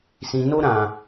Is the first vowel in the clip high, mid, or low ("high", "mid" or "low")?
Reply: high